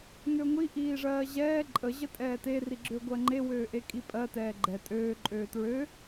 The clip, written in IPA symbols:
ŋ ø ŋʷ i ʔ iː ʐ ɜː ʑ ɛː ǃʼ ə ʑ ə tʼ ɛː t e r i ɡ͡ǁ ø ɡʷ ɜ ŋ͡ǃ e w øː ʔ e kʼ i pʼ ɜ t ɛː ɡ͡ǃ ɛ tʼ øː ǃʼ øː t ɹ ø

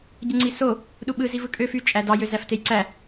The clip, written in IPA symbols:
ɟ ɯ ŋ͡ǀ i s o | ɗ u ɓ ɯ z i v ɯ kʼ ø f y t͡ʃʼ æ d ɑ j ø z æ f t e j ǀ æ

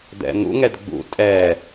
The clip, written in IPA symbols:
d̪ ɛ̰ n̪ ṵ ŋ ɛ d ɡ͡b ṵ tʼ ɛ

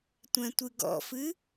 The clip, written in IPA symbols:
tʷ ɛ̃ tʷ ɨ ɡ ɔ̰ f ɨ

